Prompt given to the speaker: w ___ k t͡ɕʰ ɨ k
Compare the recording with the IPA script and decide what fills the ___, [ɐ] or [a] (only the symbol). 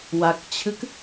a